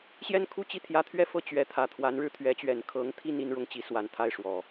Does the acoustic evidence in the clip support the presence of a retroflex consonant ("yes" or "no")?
yes